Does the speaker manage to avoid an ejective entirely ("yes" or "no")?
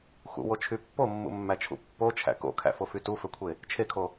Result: yes